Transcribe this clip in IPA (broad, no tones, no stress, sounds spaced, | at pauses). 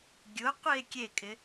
ɡʲ ʊ qʷ i e̯ kʲ e kʼ ɪ